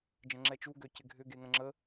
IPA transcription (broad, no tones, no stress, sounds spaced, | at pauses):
d͡ʒ ə̃ ŋ͡ǁ ɛ t͡ʃ u ɡ ø c ɪ ɡʱ ʏ ɡ e ŋ ə̃ ŋ͡ǁ ə